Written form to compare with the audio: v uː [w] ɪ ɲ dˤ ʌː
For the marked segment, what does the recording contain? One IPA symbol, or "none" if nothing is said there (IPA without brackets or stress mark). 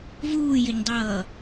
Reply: j